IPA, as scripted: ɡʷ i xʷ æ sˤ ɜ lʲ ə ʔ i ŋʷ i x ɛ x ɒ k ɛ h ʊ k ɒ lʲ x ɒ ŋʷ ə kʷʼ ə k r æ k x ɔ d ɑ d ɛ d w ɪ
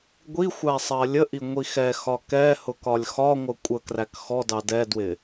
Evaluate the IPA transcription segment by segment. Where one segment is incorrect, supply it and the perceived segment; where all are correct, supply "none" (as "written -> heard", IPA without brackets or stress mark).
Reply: none